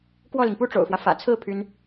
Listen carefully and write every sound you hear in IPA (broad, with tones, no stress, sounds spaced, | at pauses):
k w ɔ˥˩ l i˩ ŋ p u˥ ʈ͡ʂ o̰˨˩ ʊ̯ f w ä˦ f ä̰˨˩ t͡sʰ ɹ̩˥˩ pʰ y˥ n